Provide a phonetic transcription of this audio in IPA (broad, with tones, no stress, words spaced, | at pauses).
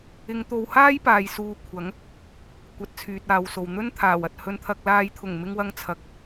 ɪ˨˧ŋt̪o˨˧whaː˥jpaː˨j suː˨˧ kʷʰɐ˨˥ŋ | kʷɐ˨˥t̚t͡sʰyː˨t̚aː˨wso˨w n̪ɵ˥nt̪ʰaː˨˩wɐ˨t̚ hɵ˧nt̪ʰɐ˧k̚ laː˨˧jt̪ʰʊ˨˩ŋ mɪ˧ŋwɐ˧ŋ t͡sʰɐ˨˥k̚